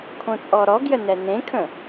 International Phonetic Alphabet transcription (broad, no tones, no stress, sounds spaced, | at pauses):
kʰ õ t͡sʼ ɔ ɾ ɔ ɡ j ə n ɛ n ẽ kʰ ə̃